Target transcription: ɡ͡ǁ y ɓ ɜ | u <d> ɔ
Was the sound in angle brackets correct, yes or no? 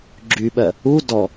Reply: yes